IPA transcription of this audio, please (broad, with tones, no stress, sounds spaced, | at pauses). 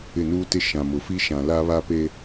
ɪ˦˨ n uː˦ t ɪ˦ ʃ ã˨ m ʊ˨ f i˦ ʃ ã˨ l a˦ β a˦ p e˦